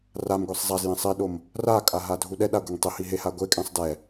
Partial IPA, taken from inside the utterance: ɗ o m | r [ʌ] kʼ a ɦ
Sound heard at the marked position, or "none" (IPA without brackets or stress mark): a